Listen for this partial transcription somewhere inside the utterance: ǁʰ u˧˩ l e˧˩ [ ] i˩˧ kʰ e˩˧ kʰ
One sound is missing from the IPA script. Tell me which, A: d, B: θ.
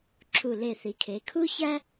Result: B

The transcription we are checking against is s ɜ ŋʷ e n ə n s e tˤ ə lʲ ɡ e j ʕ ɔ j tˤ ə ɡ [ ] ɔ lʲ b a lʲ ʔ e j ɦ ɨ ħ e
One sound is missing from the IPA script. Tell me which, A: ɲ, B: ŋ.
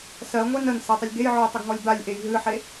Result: B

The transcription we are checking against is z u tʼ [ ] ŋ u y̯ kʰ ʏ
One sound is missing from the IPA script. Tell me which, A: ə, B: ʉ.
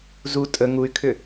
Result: A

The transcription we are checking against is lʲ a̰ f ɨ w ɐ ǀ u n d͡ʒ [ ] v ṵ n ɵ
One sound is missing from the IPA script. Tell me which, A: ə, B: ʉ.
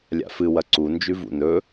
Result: B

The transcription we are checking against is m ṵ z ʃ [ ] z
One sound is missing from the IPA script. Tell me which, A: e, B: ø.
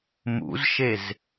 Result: A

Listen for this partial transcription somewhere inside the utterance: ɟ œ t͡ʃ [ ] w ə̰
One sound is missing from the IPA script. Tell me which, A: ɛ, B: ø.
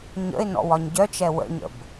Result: A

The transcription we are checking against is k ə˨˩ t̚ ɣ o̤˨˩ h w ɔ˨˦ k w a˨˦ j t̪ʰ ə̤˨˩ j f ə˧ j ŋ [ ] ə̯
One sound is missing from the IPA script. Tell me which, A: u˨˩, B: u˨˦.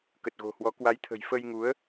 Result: B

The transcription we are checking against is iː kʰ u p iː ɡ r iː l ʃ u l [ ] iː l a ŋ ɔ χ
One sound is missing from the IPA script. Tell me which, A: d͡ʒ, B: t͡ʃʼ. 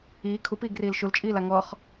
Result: B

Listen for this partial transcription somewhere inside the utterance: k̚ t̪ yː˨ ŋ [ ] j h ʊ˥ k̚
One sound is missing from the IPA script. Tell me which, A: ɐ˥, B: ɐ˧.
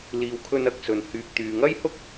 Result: A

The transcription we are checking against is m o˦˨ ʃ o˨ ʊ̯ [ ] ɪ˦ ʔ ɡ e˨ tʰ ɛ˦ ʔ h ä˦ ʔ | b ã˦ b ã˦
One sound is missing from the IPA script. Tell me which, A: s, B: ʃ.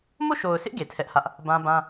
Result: A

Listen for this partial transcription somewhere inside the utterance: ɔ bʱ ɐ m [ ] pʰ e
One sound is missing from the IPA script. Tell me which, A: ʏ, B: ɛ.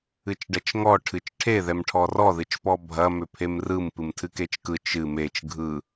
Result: A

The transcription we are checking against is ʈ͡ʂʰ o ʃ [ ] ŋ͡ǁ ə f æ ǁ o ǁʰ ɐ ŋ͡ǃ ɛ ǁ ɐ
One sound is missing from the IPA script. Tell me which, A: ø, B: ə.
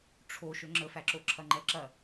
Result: A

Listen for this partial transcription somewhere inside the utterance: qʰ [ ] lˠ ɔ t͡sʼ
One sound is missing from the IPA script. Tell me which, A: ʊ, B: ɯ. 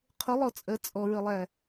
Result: A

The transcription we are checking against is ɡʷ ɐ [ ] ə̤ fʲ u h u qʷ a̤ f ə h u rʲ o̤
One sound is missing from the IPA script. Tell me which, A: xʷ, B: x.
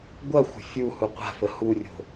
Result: A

